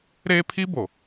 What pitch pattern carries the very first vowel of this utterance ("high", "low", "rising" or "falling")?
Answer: high